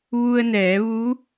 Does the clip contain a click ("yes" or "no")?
no